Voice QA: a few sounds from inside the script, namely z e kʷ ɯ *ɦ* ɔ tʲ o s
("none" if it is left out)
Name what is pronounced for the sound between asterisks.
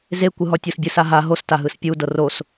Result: ɦ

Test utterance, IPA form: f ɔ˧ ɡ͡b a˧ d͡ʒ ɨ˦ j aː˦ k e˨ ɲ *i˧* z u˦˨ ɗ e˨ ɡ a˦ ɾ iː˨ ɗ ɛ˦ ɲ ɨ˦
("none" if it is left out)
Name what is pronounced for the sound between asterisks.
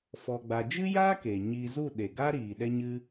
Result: iː˧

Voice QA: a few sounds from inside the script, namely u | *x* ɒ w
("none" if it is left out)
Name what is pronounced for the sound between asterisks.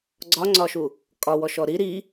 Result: kʼ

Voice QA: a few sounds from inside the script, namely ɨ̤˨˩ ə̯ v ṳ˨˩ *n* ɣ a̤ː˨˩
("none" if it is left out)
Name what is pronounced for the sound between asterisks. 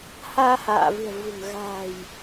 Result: ŋ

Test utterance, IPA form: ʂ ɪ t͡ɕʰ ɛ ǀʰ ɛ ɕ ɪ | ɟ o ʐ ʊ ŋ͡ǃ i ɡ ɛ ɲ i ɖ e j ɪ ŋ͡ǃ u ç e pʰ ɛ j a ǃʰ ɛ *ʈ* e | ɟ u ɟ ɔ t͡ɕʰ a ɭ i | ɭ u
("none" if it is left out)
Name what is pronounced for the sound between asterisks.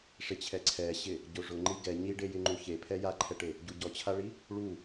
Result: ʈ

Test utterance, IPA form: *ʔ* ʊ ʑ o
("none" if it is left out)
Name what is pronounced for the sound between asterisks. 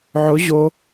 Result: ʕ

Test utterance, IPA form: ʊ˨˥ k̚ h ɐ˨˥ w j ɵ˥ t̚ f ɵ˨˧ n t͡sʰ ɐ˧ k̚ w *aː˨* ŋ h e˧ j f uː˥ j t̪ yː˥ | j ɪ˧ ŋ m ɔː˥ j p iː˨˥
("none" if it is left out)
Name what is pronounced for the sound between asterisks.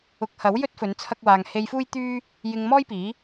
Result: aː˨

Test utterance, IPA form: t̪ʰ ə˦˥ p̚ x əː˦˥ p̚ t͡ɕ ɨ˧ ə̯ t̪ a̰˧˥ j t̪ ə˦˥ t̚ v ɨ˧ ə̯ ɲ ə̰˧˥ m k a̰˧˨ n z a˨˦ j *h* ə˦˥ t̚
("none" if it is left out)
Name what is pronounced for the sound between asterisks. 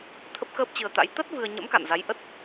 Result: ʔ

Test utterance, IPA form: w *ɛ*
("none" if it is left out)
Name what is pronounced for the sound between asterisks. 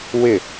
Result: ɪ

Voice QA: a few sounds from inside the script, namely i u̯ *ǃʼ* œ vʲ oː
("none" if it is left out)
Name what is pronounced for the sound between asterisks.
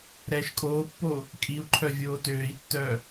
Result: ǃʰ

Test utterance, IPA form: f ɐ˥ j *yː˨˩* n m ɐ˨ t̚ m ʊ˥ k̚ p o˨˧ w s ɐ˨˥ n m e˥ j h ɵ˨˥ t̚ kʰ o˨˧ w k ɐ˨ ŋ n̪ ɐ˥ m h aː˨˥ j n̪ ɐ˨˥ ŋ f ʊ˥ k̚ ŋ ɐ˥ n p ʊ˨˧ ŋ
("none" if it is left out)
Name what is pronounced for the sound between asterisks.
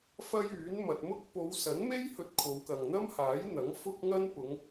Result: yː˨˥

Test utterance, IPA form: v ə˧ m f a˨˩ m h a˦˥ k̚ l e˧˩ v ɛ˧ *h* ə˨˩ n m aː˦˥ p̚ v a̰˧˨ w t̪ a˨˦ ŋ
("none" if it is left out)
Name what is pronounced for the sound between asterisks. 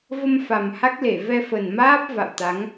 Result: f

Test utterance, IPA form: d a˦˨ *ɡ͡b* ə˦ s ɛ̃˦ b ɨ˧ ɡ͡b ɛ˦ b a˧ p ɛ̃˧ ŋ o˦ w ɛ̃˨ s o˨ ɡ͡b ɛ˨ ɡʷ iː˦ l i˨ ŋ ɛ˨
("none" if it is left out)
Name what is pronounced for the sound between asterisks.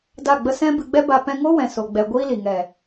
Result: ɡ͡b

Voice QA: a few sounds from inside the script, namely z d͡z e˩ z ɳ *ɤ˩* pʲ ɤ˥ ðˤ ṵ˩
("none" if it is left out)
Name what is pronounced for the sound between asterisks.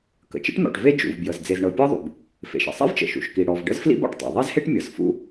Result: ɤ˩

